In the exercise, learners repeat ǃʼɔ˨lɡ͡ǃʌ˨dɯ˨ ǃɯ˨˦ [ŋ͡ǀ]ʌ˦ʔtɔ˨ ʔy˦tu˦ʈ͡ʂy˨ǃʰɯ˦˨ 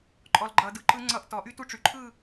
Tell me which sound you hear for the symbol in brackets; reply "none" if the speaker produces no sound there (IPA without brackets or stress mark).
ŋ͡ǀ